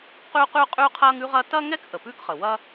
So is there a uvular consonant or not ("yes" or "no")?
yes